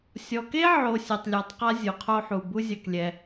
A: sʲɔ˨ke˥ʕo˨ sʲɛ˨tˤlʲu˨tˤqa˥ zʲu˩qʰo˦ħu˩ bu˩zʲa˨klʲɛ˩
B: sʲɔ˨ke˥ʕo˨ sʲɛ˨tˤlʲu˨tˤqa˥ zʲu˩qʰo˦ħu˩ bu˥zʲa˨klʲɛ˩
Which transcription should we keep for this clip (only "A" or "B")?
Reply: B